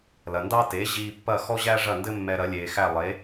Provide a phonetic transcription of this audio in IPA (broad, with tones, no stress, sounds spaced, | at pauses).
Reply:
l ɐ˩ n d ɑ˥ t e˩˥ ʑ iː˧ pː ɐ˥˩ x ɔ˥ ʑ æ˥ ʐ ɐ˥˩ n d ɘ˥ mː ɛ˧ ɾ ɐ˩˥ lʲ eː˩ x æ˥˩ lˠ e˩˥